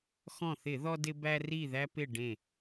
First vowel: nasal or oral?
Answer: nasal